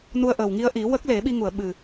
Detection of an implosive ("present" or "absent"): present